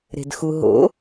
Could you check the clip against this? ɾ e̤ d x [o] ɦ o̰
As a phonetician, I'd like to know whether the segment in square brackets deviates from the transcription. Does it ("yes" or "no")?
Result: yes